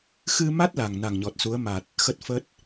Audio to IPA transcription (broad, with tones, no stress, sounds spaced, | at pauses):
x ɨ˧ m a˦˥ t̚ l a˨˩ ŋ n a˨˩ ŋ ɲ ɔ˨˩ t̚ s u˨˦ ə̯ m a˨˩ t̚ | x ə˦˥ t̚ f ə˦˥ t̚